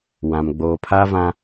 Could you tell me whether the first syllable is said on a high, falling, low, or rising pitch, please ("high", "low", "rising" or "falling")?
low